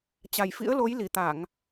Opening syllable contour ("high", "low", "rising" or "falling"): low